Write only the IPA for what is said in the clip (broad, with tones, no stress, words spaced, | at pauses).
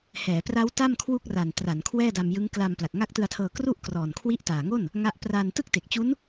hɛː˩˦pra˦˥w ta˥˩m kʰwu˥˩k̚ra˨˩n tra˩˦n kʰwɛː˥˩da˧mjɯ˦˥ŋ kla˧m pla˨˩k̚ŋa˦˥k̚tɯ˧a̯tʰɤː˧ kru˥˩ʔ krɔː˨˩nkʰwi˦˥ʔtaː˨˩ŋo˥˩n | ŋa˥˩ʔ pra˧n tɯ˥˩k̚te˨˩k̚t͡ɕu˦˥n